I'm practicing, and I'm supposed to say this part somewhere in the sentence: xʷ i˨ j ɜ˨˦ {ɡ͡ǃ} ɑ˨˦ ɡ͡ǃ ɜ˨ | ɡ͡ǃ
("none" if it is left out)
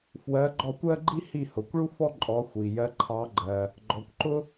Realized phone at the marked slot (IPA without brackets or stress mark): ǃʰ